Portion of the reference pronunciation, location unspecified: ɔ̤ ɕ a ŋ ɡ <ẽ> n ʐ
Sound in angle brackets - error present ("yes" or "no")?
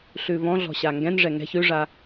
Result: yes